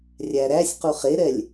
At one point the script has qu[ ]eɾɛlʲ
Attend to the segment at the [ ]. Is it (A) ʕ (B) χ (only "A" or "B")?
B